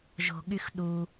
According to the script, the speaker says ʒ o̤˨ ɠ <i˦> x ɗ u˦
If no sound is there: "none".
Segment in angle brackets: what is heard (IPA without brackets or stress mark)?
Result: y˦